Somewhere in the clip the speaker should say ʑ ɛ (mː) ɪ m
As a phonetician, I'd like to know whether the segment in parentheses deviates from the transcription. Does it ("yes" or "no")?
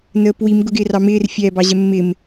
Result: no